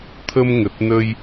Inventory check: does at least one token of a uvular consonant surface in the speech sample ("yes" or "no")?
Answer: no